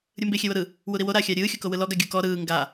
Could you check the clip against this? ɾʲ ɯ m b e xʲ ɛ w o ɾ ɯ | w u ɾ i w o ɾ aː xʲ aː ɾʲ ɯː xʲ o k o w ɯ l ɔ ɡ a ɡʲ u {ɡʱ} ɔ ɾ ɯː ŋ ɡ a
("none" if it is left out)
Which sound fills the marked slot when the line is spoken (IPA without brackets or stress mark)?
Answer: k